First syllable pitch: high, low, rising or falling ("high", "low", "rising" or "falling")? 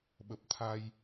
low